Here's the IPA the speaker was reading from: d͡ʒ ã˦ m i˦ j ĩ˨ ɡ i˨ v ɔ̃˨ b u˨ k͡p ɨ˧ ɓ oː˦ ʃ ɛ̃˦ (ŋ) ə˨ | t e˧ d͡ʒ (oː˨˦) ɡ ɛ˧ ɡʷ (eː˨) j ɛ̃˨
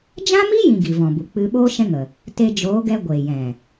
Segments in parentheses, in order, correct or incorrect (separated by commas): correct, correct, correct